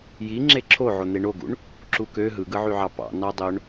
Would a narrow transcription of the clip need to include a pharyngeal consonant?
yes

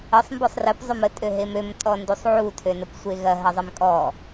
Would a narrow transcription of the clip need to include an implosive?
no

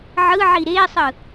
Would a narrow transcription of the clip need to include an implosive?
no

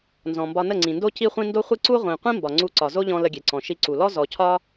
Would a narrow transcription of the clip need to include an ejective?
no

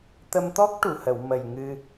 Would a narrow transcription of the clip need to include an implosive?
no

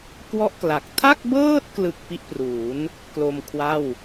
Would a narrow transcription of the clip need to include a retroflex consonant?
no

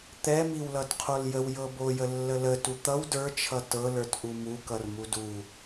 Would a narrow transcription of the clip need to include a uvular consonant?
yes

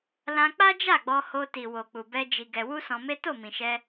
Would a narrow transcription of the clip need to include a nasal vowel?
yes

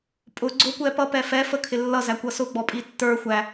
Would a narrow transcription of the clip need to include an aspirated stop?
yes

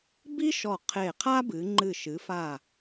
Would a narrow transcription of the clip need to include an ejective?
no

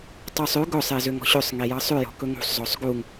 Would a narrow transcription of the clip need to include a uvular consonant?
no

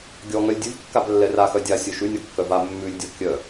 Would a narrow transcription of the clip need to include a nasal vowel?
no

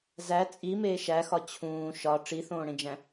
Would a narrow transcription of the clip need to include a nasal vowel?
yes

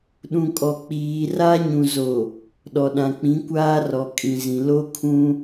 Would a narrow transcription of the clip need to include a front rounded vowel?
no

